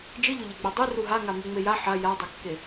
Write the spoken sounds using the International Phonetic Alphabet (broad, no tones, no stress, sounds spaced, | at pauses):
d͡ʒ ɨ ʎ ɵ ʎ e ɡ͡b a dˤ ʉ r u ɦ a ŋ a m ʉ ŋ͡m e j a ħ a j a dˤ ɵ kː e